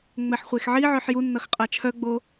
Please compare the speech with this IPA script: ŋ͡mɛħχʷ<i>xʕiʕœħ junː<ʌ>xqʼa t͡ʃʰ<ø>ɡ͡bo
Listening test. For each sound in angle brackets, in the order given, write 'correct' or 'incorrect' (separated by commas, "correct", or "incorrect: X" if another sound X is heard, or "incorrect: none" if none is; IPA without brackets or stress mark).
incorrect: e, correct, incorrect: œ